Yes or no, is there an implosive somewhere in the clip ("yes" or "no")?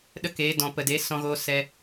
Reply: yes